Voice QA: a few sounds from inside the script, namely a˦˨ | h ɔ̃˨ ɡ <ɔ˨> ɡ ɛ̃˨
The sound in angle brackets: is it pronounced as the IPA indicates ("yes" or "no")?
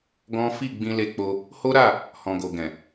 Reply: no